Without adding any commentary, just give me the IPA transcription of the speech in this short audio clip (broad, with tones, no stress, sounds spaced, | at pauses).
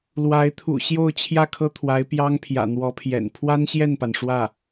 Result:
l w a˧˥ ɪ̯ t̪ʰ ṵ˨˩ ɕ j o˥˧ ʊ̯ t͡ɕʰ j ä˥˩ kʰ ɤ˥ t̪ʰ w a˧˥ ɪ̯ p j ɑ˥ ŋ pʰ j ä̰˨˩ n̪ w ɔ˧˥ pʰ j ɛ̰˨˩ n pʰ w a˥ n ɕ j ɛ˥˩ n p a˩ n ʂ w ä˥˩